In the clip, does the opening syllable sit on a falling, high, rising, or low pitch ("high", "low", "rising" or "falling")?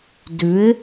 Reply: rising